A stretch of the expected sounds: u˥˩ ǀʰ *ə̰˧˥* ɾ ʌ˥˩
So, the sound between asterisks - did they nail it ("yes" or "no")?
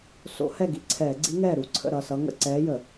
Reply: no